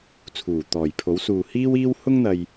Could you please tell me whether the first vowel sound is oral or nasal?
oral